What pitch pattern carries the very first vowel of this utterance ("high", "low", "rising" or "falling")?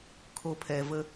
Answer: low